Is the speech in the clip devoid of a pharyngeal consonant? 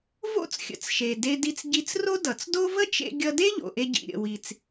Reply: yes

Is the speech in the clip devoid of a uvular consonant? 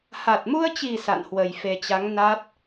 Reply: yes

